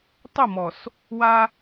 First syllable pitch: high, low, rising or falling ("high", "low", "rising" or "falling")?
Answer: falling